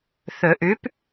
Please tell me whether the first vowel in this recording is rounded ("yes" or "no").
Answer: yes